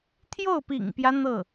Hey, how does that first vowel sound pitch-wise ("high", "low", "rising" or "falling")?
falling